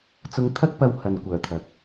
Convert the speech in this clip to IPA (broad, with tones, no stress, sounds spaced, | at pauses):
t͡s ʊ˧ ŋ t̪ʰ ɐ˥ k̚ p ɐ˧ w h ɐ˨ n kʷ œː˨˩ t̪ʰ ɐ˨ k̚